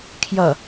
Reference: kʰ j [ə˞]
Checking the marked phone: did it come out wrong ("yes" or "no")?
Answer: yes